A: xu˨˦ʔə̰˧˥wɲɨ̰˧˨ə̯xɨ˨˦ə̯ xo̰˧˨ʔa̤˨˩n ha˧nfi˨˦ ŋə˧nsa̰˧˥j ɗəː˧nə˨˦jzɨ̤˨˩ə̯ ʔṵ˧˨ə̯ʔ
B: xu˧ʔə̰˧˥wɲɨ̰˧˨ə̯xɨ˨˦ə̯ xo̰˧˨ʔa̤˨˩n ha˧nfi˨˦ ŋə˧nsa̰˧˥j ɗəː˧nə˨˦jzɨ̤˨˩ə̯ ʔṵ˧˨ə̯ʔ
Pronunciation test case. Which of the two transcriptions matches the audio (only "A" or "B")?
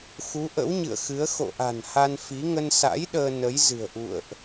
A